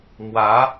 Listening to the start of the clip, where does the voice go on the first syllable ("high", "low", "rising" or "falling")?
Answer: rising